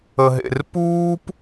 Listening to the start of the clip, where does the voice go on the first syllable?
low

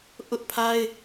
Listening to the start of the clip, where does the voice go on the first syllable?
high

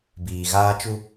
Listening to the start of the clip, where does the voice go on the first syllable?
low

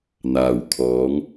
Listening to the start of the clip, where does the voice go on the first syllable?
low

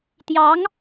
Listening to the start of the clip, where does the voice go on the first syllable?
rising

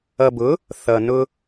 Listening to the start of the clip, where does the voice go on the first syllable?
low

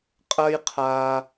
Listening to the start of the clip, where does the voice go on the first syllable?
high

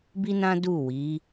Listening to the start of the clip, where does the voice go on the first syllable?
high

